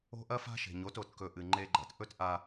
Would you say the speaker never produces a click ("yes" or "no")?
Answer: no